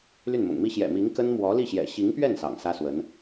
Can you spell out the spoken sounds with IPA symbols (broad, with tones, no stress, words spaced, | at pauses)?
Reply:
ly˥˩nmʊ̰˨˩ŋmi˥ ɕjɛ̰˨˩ mi˧˥ŋ kə˥n mwɔ˧˥li˥˩ɕjɛ̰˨˩ ɕi˧˥ŋpɥɛ˥˩n sɑ̰˨˩ŋsä˥swə˧˥n